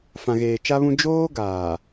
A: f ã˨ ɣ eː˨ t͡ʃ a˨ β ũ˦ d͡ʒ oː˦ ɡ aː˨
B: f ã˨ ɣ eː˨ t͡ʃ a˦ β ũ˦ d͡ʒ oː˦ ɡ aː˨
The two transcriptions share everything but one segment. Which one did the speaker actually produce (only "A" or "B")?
B